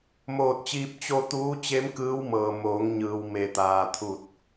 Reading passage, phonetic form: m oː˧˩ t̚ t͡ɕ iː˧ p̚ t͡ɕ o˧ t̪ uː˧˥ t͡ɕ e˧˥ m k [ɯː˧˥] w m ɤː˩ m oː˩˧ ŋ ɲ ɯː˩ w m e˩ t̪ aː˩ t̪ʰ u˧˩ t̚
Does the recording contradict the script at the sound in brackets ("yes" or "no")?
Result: no